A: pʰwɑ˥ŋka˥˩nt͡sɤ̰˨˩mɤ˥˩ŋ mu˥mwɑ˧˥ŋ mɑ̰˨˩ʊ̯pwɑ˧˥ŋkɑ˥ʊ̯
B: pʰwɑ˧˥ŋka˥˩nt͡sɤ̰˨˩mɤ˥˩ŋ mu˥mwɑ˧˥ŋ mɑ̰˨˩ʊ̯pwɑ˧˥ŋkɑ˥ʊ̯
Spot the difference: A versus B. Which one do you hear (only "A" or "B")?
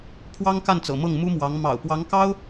A